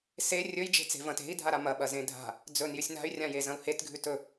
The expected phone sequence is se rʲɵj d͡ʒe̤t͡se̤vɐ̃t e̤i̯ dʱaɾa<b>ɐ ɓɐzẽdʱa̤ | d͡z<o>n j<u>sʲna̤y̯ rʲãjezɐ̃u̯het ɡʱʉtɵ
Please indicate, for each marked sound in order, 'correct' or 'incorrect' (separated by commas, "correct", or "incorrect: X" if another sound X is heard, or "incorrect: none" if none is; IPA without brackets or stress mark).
incorrect: m, incorrect: ɵ, incorrect: ʉ